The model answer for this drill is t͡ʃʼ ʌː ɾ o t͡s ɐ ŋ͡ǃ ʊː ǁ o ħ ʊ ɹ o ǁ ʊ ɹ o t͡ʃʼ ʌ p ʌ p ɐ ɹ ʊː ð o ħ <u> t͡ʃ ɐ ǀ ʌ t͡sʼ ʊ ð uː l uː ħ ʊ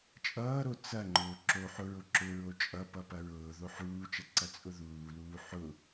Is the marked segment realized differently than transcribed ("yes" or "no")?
yes